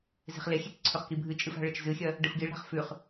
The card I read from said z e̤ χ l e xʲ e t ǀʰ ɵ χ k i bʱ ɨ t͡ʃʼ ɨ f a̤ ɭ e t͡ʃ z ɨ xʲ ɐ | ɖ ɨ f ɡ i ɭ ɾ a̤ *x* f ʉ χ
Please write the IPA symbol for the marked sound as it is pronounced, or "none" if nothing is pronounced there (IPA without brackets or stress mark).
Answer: χ